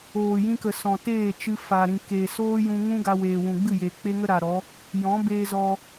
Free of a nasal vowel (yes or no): no